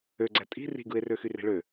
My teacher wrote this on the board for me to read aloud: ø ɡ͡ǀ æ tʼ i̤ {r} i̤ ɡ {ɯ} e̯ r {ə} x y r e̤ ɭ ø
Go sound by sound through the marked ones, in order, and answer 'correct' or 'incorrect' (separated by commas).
correct, correct, incorrect